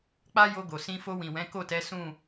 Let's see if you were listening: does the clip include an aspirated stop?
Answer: no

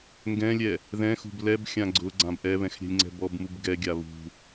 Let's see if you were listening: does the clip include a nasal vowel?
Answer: yes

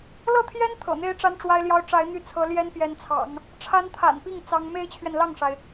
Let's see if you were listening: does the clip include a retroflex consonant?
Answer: yes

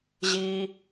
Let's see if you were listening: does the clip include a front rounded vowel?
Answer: no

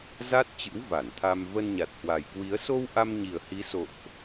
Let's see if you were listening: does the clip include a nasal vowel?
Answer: no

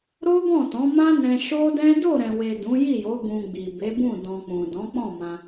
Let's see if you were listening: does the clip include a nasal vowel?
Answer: yes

